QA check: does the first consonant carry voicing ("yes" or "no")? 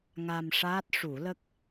yes